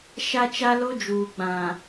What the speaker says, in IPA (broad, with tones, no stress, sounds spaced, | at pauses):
ʃ a˦ t͡ʃ a˦ l o˦ d͡ʒ uː˨ ɡ͡b ã˨